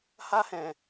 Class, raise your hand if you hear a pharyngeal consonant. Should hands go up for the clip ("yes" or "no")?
no